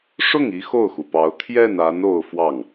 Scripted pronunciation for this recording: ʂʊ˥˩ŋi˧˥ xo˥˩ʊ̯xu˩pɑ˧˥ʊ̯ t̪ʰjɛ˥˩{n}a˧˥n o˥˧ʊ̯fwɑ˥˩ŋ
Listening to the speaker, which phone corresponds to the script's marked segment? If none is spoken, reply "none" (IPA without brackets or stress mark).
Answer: n